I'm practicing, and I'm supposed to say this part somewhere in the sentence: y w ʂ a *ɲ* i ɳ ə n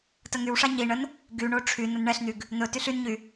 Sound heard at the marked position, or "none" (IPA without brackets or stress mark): ɲ